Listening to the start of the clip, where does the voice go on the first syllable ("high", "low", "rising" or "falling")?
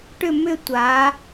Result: falling